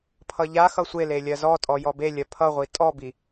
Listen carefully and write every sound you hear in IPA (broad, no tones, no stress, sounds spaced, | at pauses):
pʰ ʌ ʎ a x ʌ sʷ e l e lʲ ɜ z ɔ tʼ ɔ j ɔ b e lʲ ɜ pʰ ʌ ʁʷ i tʼ ɔ b i